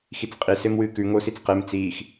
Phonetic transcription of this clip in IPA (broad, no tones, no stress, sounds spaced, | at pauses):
x i t͡s qʼ i s e m w ɨː k ʉ ŋ o s i t͡s q e m t͡s iː x